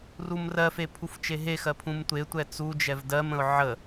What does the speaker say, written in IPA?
rumrɜfe pʰuft͡ʃeɦexɜ pʰũmtʷetʷɛ t͡sud͡ʒɛv dɜmə̃ʊ̯ ʕə

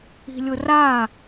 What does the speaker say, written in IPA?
i̤lʲʊra

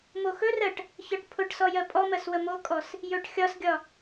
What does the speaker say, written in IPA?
moxɵrɜʈ | çɒʈpʰʊʈsɔ jɜpʼɔmɜs wəmokʼɔs | jɵʈ xʲɒsɡʲɒ

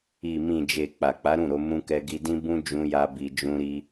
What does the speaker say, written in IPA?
i˨mĩ˨d͡ʒe˨ k͡pa˨k͡pa˨˦ɾũ˦˨ɾo˧ mũ˧kɛ˧ɡi˧dĩ˦ bũ˦ d͡ʒũ˦ja˦bi˧ d͡ʒũ˦ɾi˦

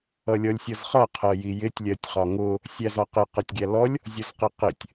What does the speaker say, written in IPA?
ʌlʲɔlʲsʲʌzχʌ qʰɜjijɪtʲ lʲɜtʲχɒŋʊ | sʲæzɒqɪ qʌtʲɡʲælɔlʲ | zʲʌzqiqɪtʲ

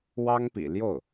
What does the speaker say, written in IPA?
wɑ˥ŋpḭ˨˩ljo˥˩ʊ̯

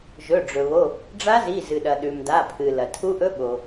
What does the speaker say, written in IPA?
ʒɵ˩˧˩ɖ͡ʐɵ˩βo˩˧˩ | ɖ͡ʐa˦˥zi˩˧˩zɨ˩ɗɐ˩ ɗʉ˩mda˩˧˩pʰɨ˩ lɐ˩tʰu˦˥ʔɵ˦˥ ɓo˩

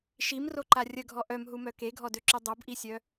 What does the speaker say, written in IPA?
ʃimroǃa rʲəɡʱɔ ʔœmɦumœ keɡʱɔdøǁy dˤobʔisʲœ

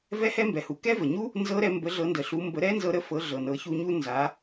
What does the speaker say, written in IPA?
vɛ˦˥hɛ˦˥mbɛ˩hu˩ kɛ˦˥və˩ɲu˦˥ | nzɤ˦˥ɾɛ˧ mbə˩˥ ɮɤ˩˥ndə˩ɬu˩˥ mbə˩˥ɾɛ˦˥nzɤ˧ ɾə˩˥ fɤ˩˥ɮɤ˩ nɤ˩˥çu˧ɲu˦˥ nza˩˥

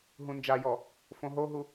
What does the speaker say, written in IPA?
ɦũnd͡ʒajɔ | fõɦoɦu

